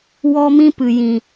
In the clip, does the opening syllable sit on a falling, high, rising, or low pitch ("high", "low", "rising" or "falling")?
high